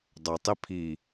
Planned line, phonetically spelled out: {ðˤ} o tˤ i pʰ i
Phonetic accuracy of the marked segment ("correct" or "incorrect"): incorrect